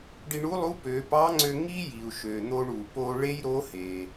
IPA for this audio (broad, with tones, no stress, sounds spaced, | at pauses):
ɖ i˧ ɳ u˧˥ lˠ u˧˥ p ø˩˧ p ɑ˧˥ ŋ͡ǀ ø˧ ŋ i˥ j i˩ u̯ ʃ ø˩ n̪ o˧ ɳ u˩ p o˧ ɭ e˥ j ɾ o˧˥ h e˩